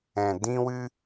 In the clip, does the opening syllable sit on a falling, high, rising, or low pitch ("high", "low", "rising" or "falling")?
low